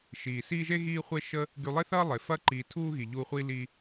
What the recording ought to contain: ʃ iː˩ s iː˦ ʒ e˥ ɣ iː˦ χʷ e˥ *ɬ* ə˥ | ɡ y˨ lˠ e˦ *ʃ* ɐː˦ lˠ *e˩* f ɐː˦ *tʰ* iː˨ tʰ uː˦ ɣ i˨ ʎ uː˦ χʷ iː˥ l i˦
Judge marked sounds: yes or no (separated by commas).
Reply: no, no, yes, no